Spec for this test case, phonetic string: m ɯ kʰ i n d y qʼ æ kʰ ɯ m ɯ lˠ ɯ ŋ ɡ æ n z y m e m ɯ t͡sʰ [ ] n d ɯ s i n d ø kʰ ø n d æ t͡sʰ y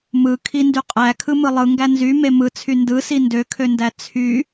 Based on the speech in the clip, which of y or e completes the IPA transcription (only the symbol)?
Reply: y